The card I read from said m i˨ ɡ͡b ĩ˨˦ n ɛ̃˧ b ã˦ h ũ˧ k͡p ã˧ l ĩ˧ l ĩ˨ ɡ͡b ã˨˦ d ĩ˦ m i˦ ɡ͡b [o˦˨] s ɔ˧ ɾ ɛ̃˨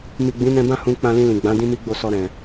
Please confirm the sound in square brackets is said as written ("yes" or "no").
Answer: yes